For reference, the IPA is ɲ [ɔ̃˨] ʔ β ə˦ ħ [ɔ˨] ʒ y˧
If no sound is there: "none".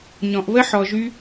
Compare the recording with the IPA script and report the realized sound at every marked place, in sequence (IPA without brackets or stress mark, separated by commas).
ɔ̃˨, ɔ˨